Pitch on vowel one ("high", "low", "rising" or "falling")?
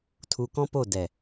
low